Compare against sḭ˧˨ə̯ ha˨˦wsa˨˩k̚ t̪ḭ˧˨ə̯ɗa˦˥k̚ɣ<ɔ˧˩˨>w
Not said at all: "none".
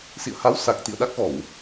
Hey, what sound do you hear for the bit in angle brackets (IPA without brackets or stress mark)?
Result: ɔ˧˩˨